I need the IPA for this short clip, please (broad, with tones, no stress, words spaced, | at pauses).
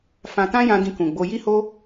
fã˧ tã˦jã˧ dĩ˧kũ˨ɡ͡bo˧ ji˦ho˦